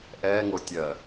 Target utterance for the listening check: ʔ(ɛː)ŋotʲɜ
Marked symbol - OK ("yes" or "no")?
yes